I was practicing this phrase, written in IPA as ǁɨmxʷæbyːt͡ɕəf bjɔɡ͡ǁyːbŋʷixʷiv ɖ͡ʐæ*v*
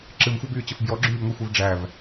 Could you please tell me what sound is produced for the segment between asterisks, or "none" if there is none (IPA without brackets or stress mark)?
v